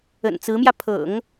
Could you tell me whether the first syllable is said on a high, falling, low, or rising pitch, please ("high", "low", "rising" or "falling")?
low